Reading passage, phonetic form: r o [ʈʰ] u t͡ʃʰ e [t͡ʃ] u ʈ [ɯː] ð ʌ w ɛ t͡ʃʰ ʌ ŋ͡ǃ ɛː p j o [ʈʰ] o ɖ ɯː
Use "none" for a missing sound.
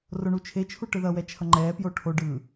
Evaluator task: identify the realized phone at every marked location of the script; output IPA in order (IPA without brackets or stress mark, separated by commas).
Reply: ɳ, t͡ʃʰ, ɯ, ʈʰ